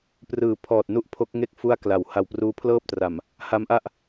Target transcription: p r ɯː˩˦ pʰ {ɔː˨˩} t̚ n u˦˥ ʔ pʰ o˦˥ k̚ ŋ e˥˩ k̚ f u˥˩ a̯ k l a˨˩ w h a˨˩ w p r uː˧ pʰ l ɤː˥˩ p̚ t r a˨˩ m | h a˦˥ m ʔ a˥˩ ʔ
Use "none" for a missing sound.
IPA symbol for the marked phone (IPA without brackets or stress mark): ɔː˨˩